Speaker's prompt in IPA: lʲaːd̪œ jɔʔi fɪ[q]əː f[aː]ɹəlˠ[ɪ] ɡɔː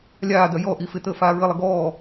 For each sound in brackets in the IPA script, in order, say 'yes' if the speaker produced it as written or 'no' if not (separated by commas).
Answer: no, yes, no